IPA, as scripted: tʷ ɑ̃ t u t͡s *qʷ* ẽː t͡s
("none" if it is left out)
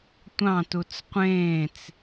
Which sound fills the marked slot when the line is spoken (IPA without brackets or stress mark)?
qʷ